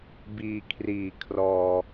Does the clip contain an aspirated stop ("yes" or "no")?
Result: yes